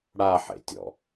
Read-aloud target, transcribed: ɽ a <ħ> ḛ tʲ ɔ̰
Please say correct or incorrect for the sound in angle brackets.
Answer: correct